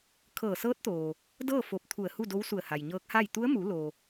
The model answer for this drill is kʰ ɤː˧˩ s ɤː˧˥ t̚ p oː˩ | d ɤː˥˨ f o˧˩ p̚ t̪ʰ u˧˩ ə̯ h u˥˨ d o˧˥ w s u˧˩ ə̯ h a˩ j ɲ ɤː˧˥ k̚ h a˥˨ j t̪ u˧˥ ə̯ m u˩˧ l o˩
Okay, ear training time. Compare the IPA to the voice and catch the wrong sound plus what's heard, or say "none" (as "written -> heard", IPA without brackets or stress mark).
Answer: p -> t̪